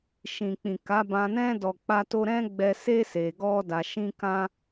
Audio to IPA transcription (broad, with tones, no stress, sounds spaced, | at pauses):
ʃ ĩ˨ k͡p ĩ˨ k a˨˦ b ã˧ n ɛ̃˦ d ɔ˧ k͡p a˦ t o˦ ɾ ɛ̃˦ ɡ͡b ɛ˧ s e˦ s e˧ ɡ ɔ˦ d a˧ ʃ ĩ˦ k ã˦